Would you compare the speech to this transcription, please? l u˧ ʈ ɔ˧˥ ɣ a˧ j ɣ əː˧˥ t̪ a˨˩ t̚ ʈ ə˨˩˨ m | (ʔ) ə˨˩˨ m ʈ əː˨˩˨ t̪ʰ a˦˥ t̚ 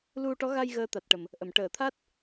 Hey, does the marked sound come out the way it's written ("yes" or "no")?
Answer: yes